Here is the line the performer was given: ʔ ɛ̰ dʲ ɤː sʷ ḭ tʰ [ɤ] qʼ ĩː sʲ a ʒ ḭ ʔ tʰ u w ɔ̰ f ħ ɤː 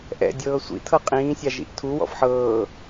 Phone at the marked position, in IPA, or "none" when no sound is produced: ɤ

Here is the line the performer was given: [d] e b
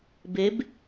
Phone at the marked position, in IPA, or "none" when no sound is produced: b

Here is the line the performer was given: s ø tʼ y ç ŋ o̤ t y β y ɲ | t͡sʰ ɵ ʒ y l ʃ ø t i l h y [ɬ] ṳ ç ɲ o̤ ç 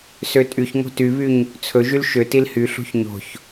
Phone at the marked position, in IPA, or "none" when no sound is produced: ɬ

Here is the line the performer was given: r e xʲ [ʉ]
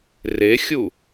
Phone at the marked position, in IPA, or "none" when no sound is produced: u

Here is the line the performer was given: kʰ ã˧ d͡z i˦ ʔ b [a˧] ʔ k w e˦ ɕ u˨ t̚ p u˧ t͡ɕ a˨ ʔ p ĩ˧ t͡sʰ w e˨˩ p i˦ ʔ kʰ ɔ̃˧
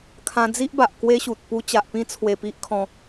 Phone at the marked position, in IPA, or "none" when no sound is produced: a˨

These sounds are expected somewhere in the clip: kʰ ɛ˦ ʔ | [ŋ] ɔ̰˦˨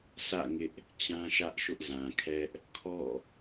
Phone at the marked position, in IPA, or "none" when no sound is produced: kʰ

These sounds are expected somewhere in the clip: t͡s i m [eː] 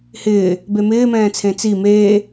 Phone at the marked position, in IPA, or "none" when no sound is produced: eː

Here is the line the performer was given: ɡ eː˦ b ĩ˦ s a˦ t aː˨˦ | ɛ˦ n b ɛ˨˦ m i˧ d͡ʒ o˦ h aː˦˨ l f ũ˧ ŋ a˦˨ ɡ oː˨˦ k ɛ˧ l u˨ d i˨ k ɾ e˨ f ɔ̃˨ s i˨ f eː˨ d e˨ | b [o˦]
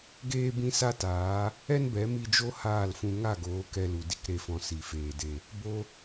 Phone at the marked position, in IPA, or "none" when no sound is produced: o˧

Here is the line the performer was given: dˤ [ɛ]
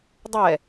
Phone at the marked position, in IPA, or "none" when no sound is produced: ɛ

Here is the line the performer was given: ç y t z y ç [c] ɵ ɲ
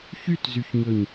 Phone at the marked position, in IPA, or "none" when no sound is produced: ɲ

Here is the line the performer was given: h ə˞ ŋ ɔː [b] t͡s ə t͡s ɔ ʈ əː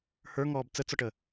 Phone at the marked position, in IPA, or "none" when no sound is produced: b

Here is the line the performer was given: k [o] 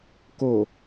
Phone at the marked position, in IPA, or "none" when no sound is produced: o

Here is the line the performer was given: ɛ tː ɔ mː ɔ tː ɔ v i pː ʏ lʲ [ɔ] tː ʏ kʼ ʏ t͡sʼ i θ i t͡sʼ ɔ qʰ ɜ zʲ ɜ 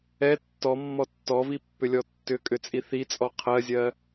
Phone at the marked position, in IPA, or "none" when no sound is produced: ɔ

